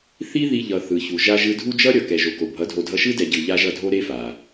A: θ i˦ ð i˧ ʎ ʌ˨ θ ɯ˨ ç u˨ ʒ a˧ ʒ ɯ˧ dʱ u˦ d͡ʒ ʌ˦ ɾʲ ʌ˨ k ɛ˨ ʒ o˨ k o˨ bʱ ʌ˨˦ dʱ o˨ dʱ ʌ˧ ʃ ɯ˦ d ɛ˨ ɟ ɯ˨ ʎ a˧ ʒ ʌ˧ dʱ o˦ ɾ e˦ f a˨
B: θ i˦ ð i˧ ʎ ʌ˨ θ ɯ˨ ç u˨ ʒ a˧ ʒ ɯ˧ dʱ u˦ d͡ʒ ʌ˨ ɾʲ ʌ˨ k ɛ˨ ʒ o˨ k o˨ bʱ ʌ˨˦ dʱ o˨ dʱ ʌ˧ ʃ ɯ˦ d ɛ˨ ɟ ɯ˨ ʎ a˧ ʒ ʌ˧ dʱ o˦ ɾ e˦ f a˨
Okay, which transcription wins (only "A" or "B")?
A